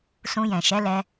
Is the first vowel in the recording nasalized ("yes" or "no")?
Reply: yes